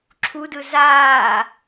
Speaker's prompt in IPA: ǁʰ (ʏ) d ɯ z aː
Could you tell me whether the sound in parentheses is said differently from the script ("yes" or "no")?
yes